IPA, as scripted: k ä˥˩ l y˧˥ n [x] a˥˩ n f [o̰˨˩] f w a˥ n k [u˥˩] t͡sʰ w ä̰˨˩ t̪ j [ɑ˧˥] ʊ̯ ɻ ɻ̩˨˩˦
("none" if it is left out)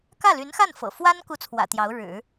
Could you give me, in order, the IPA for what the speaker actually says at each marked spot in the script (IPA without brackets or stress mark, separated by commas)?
x, ɤ̰˨˩, u˥˩, ɑ˧˥